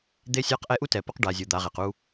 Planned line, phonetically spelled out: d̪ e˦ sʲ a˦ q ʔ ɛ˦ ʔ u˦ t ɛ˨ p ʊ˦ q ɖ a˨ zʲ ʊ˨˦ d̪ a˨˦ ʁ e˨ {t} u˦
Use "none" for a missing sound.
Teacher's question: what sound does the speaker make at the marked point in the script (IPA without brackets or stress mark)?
q